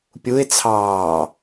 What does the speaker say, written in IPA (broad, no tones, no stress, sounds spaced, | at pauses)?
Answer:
pʲ u ɪ̯ t͡sʰ ɑː